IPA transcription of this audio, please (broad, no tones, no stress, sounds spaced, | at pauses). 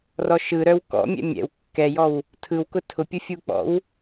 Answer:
r ɔ ʃ ɯ ɾ œ w k ɔ̰ mʲ ɛ̰ mʲ ɛ̰ w kː ɛ j ɔ w | tʰ ɯ w k ʊ tʰ ʊ pʲ ʊ fʲ u k͡p ɔ̰ w